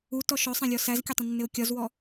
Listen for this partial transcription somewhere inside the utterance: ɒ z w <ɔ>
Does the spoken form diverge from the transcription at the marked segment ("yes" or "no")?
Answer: no